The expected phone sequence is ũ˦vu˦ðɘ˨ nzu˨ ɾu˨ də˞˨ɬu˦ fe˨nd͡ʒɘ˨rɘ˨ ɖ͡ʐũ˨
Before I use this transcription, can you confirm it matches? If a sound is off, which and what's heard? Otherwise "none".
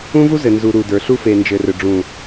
ð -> z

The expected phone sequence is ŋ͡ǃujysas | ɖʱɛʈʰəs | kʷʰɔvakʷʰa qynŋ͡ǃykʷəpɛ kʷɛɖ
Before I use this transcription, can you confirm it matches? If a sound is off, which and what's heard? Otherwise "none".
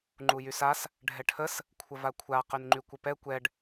ɔ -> ə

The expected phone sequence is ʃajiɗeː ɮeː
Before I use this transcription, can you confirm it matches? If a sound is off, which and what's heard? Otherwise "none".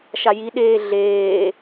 none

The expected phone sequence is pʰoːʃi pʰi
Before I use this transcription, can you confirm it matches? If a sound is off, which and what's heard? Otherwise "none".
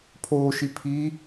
none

